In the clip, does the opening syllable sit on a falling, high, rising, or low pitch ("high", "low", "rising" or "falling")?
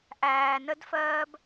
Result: low